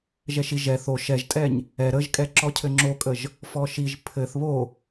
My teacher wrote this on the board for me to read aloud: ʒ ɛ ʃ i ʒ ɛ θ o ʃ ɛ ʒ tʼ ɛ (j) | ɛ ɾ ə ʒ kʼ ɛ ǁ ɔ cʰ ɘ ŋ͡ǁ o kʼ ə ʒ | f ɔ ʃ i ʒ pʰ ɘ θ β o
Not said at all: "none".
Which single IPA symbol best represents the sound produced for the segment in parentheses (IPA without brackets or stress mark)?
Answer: ɲ